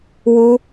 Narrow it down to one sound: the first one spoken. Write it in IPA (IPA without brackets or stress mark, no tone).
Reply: w